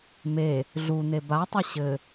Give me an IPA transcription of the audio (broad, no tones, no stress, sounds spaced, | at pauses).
m e | ɮ u n̪ e b a tˤ ɘ ɕ ɘ